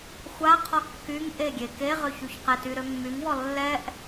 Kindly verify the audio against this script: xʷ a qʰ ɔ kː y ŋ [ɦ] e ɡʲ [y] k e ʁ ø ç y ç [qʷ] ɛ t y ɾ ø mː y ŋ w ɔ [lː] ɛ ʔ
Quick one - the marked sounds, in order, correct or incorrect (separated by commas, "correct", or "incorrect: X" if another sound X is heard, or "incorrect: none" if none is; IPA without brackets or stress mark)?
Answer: incorrect: ʔ, incorrect: e, incorrect: q, correct